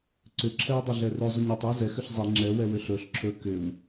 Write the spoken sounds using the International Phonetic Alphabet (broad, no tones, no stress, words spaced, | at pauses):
ǀʏǁʰɛw dˤɵɮɛrɵ zˤɵɲɛtˤ ɯwzɛx ʏɬzˤi ŋ͡ǁɛwɛ wʏɬɵɬ ǁʰɵ kʏw